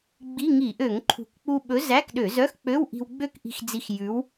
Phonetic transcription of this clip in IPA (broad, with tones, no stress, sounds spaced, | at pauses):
ɡ͡b i˧˥˧ ŋ i˧˩˧ ʔ ø˧˩˧ ŋ ǃʰ ṳ˨˩ k k͡p u˧ ɓ ɵ˨˥ z æ˧˥˧ k ɗ ø˧˩˧ z œ˧˥˧ x k͡p ø˧˥˧ w ʔ i̤˧ w ɡ͡b ø˥˧ k ʔ i̤˧ x d͡z i˧ x j ʉ˨˥ w